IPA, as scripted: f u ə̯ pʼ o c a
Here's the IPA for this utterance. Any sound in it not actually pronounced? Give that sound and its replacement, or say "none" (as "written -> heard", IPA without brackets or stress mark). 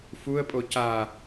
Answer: none